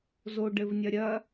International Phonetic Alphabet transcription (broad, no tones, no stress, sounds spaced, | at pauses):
z o ɖ ɘ v nʲ ɐ ɾʲ ɐ